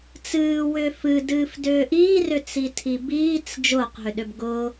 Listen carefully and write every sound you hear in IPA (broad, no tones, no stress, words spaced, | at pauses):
t͡sɨːwʏː fɨdɨːfdʏː ʔiːrʏt͡sitʰi biːt͡s d͡ʒʊːqɦʏɗʏb ɡʊ